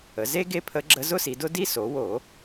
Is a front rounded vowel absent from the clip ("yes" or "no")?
yes